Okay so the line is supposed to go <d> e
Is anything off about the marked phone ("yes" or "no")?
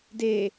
no